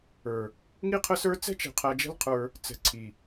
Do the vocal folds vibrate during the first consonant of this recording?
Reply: yes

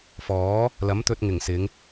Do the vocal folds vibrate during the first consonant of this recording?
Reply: no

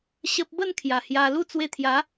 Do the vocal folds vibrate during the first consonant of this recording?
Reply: no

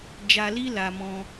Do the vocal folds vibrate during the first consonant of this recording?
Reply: yes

